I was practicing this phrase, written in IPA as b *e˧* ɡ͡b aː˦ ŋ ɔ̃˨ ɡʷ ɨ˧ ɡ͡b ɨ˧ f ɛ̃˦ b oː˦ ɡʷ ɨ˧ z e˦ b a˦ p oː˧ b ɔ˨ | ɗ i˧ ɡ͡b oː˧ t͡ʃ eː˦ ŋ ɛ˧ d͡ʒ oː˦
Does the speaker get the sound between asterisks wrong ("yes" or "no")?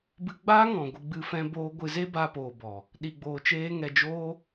yes